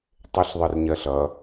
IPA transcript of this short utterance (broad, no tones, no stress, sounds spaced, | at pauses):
tˤ ɪ ɬ ðˤ ɜ r ɲ ɜ ɬ ʌ